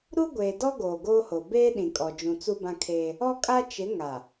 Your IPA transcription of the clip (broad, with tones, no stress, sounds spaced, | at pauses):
ɾ u˦ ɡʷ eː˨ d ɔ˦ ɡ oː˨ ɡ oː˦ h o˨ b eː˦ ɗ ĩ˨ kʼ ɔ˨ d͡ʒ ũ˨ t͡s u˦ b ã˦ kʰ eː˦ | ɔ˦ kʼ a˦ t͡ʃ ɪ˨˦ ŋ a˨